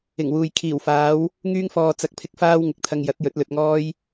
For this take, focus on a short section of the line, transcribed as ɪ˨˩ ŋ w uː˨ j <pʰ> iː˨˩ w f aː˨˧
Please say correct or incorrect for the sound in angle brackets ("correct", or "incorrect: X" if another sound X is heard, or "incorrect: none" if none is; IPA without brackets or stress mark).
incorrect: kʰ